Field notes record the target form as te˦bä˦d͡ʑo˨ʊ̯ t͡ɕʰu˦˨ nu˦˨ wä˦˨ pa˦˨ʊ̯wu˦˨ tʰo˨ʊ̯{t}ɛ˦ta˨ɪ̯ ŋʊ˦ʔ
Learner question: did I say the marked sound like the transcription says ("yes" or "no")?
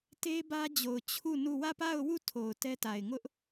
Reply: yes